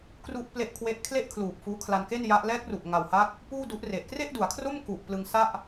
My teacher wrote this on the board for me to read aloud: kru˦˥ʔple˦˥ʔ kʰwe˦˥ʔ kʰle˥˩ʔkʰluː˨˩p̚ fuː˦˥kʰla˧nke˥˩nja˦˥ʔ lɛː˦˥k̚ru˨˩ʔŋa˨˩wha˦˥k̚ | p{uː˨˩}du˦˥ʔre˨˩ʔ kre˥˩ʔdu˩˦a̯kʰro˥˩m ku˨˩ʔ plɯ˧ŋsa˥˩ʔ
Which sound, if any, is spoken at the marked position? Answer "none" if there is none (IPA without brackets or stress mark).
uː˥˩